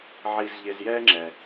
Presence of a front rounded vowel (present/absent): absent